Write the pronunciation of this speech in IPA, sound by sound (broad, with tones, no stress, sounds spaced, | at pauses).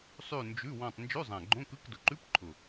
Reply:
sˤ ʉ˦˨ n d͡ʒ ʉ˧˥˧ w ɔ̃˦˨ tˤ n d͡ʒ ʉ˧˥˧ zˤ ã˨˩ ɡ͡ǃ õ˧˥˧ k ɯ˧˥˧ k d ʊ˨˩ ǃ ʉ˧˥˧ p ǃʰ ʊ˨˩